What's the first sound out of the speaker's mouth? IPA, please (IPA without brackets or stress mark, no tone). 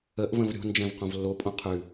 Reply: ə